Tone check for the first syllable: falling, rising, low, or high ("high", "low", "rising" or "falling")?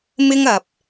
high